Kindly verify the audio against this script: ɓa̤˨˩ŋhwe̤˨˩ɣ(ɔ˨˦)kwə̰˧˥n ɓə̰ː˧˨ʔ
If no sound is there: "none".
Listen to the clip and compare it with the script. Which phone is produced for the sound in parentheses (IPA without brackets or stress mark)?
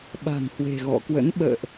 ɔ̰˧˨